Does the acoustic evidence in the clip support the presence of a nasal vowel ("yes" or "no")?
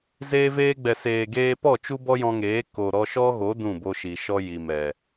yes